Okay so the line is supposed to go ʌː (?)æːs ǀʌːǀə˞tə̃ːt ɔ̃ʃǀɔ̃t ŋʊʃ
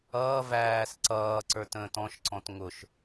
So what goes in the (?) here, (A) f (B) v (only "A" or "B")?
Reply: B